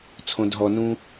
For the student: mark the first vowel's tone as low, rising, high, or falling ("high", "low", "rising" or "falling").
low